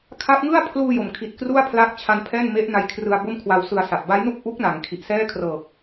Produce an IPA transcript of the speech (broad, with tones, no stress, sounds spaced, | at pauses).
kʰ a˦˥ p̚ ŋ ɯ˥˩ a̯ pʰ l uː˧ j o˩˦ m kʰ i˨˩ t̚ k r u˥˩ a̯ pʰ l aː˦˥ k̚ t͡ɕʰ a˧ n pʰ ɛː˥˩ n m e˦˥ ʔ n a˧ j kʰ r ɯ˧ a̯ b o˥˩ m kʰ w a˧ w s ɯ˧ a̯ s a˨˩ p̚ b a˦˥ j n u˥˩ k̚ ʔ u˦˥ k̚ n a˩˦ ŋ kʰ i˨˩ ʔ s ɛː˥˩ kʰ r ɤː˨˩ k̚